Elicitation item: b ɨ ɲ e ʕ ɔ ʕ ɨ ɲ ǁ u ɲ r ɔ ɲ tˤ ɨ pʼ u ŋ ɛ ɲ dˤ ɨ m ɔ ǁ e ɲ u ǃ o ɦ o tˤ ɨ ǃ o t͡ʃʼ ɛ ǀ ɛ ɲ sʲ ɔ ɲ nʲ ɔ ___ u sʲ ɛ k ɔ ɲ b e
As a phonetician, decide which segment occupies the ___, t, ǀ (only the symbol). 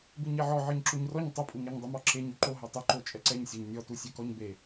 t